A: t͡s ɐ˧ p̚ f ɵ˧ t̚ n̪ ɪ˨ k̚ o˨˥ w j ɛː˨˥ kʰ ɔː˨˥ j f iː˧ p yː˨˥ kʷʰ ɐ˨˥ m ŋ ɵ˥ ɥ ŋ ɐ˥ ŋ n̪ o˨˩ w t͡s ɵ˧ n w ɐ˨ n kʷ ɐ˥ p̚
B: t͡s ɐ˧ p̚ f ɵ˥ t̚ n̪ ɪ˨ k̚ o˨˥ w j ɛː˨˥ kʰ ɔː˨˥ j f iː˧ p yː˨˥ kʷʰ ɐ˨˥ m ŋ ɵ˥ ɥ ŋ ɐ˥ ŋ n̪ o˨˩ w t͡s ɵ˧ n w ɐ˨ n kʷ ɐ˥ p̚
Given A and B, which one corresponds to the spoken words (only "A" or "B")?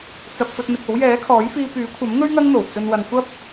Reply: A